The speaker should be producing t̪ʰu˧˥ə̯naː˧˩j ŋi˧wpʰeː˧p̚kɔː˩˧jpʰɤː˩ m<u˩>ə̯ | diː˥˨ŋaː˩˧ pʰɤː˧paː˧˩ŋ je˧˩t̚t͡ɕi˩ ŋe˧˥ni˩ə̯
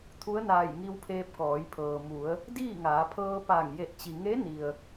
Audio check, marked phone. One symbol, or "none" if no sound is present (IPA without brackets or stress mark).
u˩˧